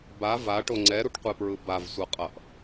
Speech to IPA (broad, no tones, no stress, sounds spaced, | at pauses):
b a v a ʈ o ŋ͡ǀ ɛ ɾ u ʈ qʷ e p ɹ ɯ b a v sʷ ʌ qʼ ʌ ʔ